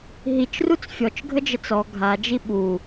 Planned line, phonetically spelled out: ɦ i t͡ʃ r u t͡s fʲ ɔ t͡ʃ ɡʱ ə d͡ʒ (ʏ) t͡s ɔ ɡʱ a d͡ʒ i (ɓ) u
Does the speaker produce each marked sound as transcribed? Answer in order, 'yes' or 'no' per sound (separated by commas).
no, yes